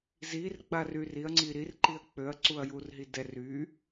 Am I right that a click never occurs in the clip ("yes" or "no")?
no